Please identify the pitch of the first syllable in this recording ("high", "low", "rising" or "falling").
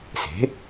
rising